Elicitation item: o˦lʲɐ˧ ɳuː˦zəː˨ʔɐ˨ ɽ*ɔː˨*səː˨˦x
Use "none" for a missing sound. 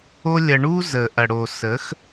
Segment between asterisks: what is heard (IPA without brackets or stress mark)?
oː˨